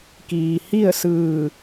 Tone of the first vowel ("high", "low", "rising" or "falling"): low